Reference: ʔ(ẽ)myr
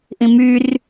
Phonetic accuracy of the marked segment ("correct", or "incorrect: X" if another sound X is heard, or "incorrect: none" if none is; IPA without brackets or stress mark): incorrect: ĩ